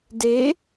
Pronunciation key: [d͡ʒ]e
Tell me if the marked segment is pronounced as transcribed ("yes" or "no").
no